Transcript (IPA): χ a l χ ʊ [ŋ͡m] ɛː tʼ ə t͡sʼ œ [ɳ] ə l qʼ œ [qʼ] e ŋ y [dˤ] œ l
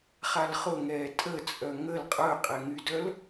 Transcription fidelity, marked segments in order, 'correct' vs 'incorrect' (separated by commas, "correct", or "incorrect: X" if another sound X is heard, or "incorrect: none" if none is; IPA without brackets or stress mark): incorrect: ŋ, incorrect: ŋ, correct, incorrect: d